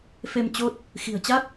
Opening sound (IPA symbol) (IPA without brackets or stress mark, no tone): f